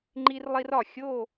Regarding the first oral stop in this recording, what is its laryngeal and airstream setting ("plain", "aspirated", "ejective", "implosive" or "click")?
click